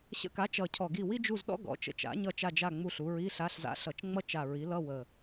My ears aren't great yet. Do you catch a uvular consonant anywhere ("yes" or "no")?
no